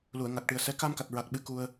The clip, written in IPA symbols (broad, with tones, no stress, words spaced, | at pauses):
lu˨˩˨ə̯ŋa˨˩k̚ʈɨ˨˩ə̯sɛ˧˥ ka˧mka˨˩t̚ɹa˨˩k̚ɓɨ˨˩˦ ku˧ə̯